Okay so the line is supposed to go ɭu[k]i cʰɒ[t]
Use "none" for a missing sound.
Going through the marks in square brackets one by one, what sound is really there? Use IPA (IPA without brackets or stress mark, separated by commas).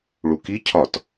k, t